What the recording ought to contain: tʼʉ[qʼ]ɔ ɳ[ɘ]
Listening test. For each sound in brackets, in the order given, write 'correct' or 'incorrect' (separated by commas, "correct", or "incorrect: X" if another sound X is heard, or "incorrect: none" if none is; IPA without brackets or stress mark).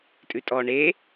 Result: incorrect: tʼ, incorrect: e